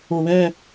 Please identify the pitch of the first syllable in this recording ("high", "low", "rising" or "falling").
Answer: low